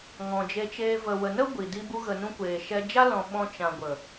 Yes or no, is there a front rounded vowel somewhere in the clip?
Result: no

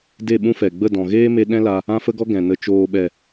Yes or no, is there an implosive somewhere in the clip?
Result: yes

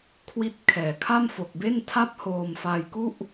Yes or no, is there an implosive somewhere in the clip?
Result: no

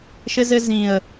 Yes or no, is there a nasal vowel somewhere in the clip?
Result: yes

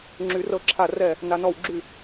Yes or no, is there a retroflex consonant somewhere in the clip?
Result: no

